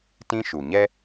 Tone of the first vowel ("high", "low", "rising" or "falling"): high